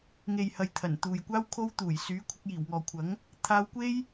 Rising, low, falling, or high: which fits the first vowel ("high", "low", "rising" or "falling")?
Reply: low